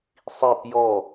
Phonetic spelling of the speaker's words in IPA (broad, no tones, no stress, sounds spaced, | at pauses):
sˤ i p j ɔ